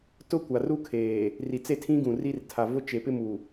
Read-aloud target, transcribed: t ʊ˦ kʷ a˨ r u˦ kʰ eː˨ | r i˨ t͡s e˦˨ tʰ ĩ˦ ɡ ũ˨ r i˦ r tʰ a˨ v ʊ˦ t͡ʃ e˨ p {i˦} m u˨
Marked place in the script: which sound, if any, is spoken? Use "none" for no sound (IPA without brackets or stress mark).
ɪ˦